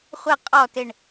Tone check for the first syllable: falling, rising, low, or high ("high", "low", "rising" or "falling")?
falling